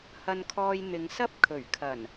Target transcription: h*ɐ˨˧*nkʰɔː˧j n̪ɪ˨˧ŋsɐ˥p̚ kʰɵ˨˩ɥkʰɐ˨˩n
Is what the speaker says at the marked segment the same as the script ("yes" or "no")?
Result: no